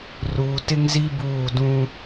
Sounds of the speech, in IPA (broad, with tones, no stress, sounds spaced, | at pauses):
r uː˨ t ɪ˦ ŋ z i˦ b uː˦˨ d ũ˦